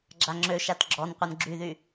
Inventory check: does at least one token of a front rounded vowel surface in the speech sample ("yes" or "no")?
yes